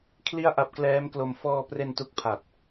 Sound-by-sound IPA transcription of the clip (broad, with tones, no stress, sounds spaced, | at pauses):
kʰ l i˥˩ a̯ ʔ a˦˥ p̚ k l ɛː˦˥ m k l o˧ m f ɔː˧ p r e˧ n t u˦˥ k̚ pʰ a˨˩ t̚